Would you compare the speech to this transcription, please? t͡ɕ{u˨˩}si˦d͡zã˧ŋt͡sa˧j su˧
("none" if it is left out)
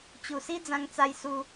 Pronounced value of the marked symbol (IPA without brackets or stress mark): u˨˩